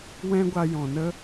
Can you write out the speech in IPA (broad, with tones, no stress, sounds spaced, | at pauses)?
w ɛ̃˦ ɡʷ a˧ j ɔ̃˨ n ə˦